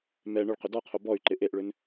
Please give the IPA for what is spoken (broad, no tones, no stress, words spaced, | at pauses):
mɛ ɳʏɭ qʏdɔqʰo bɔy̯ǃɪ ʔeʔɭʏn